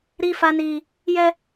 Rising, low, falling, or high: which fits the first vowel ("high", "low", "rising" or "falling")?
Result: high